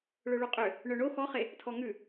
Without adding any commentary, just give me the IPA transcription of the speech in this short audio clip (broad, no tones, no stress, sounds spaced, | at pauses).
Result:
ɭ ø ɭ o qʼ ø | ɳ œ ɳ o x ɔ χ e | tʰ ɔ ŋ ʉ